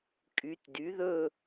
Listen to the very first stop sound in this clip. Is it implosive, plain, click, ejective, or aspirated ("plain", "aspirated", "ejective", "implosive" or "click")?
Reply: ejective